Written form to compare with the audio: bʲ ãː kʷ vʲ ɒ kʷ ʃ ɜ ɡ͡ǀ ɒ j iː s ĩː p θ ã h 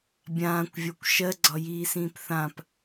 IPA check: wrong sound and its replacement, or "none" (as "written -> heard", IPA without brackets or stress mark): h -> p